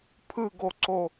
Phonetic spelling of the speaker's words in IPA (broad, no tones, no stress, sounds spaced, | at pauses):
pʰ ɯ ɡ o ǀ o